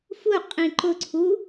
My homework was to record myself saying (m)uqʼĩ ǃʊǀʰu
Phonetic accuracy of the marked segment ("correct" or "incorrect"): incorrect